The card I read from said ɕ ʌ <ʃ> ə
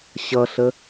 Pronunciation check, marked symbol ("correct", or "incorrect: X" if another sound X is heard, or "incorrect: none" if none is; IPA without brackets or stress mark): incorrect: ɬ